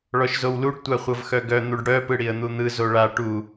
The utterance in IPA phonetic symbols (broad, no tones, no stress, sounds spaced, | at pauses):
ɭ ɔ ʃ z o w l u ɖ tʷ a χʷ ɤ v x œ ɡ œ n̪ u ɖ ɽ œ p ɯ ɽ i ə̯ n̪ u n̪ ɯ z o ɭ a ʈ u